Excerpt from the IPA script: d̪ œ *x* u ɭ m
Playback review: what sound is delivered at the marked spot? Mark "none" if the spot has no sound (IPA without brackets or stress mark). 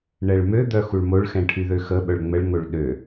x